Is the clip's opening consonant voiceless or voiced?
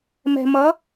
voiced